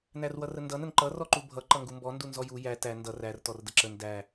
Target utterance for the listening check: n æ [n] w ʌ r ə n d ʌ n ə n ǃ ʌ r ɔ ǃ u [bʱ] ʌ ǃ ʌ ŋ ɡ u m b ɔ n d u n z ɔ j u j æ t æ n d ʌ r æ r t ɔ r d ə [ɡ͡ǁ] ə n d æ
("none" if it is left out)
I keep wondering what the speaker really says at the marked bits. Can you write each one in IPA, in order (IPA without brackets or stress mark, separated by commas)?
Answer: r, bʱ, ǁ